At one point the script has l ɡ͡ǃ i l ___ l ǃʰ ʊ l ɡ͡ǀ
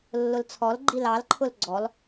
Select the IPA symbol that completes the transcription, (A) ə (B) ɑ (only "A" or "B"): B